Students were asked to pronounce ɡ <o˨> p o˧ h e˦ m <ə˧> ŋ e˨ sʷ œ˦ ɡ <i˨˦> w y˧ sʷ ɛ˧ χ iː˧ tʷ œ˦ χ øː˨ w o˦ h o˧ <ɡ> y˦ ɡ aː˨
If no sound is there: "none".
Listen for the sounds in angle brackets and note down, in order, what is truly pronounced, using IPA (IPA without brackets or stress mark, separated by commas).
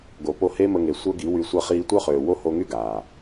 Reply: o˨, ə˧, i˨˦, ŋ